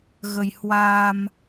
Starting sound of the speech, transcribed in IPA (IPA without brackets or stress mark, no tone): ɣ